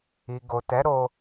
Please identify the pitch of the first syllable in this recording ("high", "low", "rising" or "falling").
low